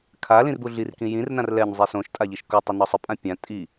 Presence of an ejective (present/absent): present